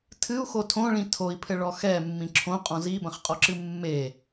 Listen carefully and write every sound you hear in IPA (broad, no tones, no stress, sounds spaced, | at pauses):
tʰ ɨ u̯ x o tʰ õ ɭ ĩ tʰ o i̯ pʰ ɘ ɭ ɔ x ɛ mː ĩ ǁʰ õ qʼ ɔ̃ z i b ɐ̃ χ qʼ ɔ ǁ ɨ mː e